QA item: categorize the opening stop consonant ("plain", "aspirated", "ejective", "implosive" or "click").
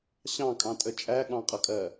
ejective